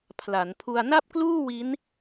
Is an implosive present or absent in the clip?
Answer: absent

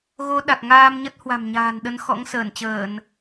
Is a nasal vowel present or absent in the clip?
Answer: absent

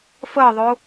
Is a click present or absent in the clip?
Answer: absent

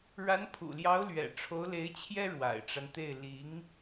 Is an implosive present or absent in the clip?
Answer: absent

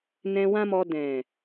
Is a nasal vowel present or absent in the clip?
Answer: present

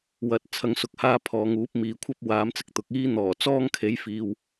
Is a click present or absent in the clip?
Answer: absent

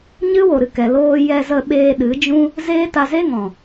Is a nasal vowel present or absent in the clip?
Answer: present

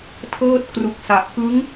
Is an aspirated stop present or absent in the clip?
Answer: present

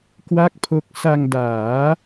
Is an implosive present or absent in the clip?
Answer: absent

